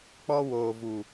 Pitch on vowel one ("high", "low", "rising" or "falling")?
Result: high